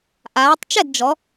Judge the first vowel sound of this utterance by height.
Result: low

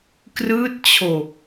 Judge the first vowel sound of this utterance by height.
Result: high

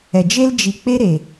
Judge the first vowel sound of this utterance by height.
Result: mid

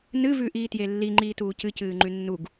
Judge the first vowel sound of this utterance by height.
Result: high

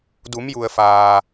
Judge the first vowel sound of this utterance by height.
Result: high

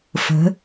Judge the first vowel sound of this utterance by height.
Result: mid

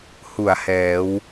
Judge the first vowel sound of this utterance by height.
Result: high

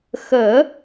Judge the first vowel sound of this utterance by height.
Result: mid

